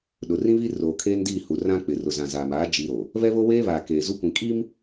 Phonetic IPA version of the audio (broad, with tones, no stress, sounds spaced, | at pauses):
ɗ ʊ˨ r ĩ˦ β i˦ r oː˨ kʰ eː˦ n d iː˦˨ h u˨ r ã˦ k͡p ɪ˨ r ʊ˨ z ã˨ z aː˨ m aː˨˦ d͡ʒ i˦ ɾ o˨ | β ɛ˦ β o˦ w eː˦ β aː˨ k eː˨ z u˦ kʷ ĩ˨ kʼ i˦ m